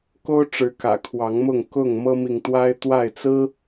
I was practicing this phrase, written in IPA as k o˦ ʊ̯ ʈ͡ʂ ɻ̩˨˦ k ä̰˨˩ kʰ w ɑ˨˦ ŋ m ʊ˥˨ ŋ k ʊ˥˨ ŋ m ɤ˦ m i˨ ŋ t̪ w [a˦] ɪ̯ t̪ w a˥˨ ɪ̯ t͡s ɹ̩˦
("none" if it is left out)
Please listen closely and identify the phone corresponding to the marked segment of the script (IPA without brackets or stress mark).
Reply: a˦